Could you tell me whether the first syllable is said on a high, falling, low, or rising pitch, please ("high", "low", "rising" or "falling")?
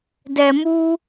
low